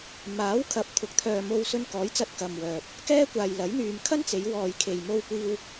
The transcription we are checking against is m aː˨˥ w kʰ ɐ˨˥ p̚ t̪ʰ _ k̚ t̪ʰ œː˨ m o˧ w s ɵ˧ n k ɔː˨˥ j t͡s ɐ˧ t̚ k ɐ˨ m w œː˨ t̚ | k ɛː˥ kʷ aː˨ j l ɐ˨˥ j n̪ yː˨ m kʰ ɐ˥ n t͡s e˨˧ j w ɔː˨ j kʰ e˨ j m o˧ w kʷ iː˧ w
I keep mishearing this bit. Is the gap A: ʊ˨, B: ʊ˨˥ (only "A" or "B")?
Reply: B